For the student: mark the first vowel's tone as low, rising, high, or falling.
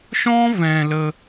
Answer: high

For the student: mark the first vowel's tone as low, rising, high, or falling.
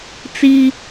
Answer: high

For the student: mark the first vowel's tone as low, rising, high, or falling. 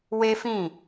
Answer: high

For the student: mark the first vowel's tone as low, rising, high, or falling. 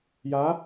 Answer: rising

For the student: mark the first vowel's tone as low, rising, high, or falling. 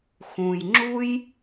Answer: low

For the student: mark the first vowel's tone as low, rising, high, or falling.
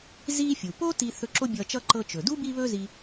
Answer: high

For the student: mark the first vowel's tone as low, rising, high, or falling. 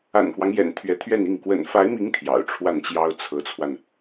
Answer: low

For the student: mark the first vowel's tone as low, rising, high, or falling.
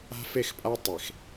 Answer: high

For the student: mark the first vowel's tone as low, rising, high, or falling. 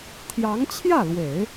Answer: rising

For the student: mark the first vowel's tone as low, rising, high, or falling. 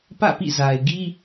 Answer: falling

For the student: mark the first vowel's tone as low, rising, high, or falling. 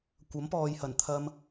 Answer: rising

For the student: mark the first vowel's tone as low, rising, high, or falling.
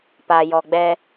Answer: low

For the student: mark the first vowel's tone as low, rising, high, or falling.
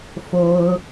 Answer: high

